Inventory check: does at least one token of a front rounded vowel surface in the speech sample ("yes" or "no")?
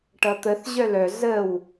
yes